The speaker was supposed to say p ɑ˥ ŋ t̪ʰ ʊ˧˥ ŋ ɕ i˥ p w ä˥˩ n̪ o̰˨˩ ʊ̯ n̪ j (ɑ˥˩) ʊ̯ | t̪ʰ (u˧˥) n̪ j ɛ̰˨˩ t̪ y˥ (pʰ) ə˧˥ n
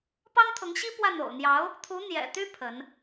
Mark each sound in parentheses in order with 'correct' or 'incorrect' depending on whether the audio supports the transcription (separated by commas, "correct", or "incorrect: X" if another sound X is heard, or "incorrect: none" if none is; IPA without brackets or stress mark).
incorrect: ɑ˧˥, correct, correct